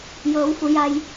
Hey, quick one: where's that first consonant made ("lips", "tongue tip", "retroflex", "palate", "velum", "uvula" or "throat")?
palate